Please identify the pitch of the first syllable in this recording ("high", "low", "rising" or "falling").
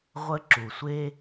high